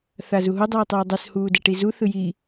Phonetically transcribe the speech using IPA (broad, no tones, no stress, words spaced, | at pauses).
θazuɦu dˤuːtˤɛːdˤɯs huːdɛʈizu θɯji